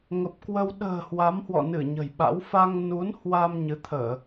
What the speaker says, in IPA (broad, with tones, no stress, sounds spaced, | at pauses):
ŋ ə˨˩ p̚ k w ə˧ w ɗ ə̤ː˨˩ h w a˨˦ m h w ɔ̰˧˨ n ɨ˧˩ ɲ ə̤˨˩ j ɓ a̰˧˥ w f a˧ ŋ n u˨˦ n h w a˧ m ɲ ɨ˨˦ t̪ʰ əː˧˩˨